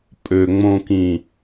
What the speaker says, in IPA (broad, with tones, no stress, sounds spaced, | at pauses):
pʼ ø˨ ŋ͡m õ˨ k ĩ˨